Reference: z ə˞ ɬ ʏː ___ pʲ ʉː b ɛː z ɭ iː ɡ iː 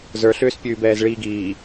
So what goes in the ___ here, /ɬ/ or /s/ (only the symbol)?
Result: s